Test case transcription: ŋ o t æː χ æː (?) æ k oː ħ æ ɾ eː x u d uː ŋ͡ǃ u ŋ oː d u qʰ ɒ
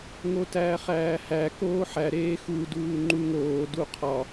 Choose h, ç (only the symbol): h